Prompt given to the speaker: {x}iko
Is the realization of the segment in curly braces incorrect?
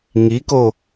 yes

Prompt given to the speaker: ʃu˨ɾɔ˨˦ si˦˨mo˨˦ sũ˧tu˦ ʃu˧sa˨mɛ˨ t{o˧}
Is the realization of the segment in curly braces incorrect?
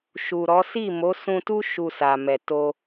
no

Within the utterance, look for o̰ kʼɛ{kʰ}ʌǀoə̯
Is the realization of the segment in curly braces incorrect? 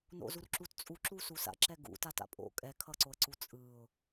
no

